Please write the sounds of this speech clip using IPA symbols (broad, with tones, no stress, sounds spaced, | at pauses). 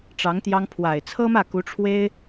ʈ͡ʂ ɑ˧˥ ŋ t̪ j ɑ˥ ŋ pʰ w a˨˩ ɪ̯ t͡sʰ ɤ˥ m ä˥˩ k u˧˥ ʈ͡ʂʰ w e˥ ɪ̯